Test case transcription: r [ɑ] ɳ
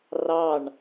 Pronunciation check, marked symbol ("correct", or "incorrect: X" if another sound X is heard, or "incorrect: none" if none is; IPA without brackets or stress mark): correct